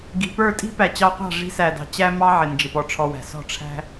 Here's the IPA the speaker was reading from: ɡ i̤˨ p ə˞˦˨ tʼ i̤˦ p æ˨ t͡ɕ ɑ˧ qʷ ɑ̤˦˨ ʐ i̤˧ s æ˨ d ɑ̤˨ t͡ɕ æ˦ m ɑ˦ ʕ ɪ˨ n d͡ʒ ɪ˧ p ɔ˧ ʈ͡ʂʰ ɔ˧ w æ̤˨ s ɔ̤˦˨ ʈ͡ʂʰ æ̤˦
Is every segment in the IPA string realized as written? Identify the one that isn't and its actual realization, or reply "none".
none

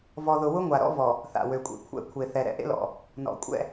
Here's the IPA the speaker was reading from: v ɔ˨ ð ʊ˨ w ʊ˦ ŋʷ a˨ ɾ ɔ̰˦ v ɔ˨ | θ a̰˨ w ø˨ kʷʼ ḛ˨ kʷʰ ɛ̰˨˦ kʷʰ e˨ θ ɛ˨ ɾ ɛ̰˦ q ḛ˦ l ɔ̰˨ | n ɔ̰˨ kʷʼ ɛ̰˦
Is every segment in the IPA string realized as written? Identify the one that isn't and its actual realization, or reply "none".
q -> ʔ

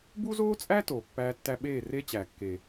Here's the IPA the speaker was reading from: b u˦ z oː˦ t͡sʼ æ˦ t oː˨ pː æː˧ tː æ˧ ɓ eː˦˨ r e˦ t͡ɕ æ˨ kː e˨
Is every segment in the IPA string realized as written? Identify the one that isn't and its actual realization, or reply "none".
none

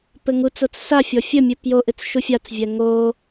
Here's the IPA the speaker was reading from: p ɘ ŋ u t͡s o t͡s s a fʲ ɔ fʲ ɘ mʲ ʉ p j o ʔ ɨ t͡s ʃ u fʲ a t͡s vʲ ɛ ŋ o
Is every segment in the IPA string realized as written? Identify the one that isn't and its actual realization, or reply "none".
ʉ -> ɨ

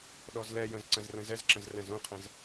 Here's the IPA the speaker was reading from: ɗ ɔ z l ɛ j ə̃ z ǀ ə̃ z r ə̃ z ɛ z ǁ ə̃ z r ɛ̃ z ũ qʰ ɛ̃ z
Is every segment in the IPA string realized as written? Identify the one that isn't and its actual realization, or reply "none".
none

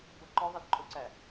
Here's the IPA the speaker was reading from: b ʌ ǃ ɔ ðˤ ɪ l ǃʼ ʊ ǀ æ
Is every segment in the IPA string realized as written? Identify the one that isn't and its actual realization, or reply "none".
none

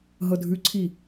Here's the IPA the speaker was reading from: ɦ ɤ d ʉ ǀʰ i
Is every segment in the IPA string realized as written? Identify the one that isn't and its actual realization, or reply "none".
d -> dʱ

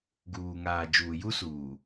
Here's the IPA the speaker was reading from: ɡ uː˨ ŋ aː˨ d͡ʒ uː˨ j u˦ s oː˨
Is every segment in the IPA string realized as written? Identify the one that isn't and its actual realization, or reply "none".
oː˨ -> uː˨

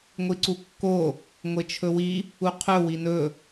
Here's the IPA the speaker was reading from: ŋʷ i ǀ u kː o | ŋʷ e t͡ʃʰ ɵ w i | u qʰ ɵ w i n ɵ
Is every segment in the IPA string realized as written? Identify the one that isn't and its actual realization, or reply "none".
none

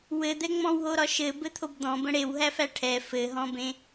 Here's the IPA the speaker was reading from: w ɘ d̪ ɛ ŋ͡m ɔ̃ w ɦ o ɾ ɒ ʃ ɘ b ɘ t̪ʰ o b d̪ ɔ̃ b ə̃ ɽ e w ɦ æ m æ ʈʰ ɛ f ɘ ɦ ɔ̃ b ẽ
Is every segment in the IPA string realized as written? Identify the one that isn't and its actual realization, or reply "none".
m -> f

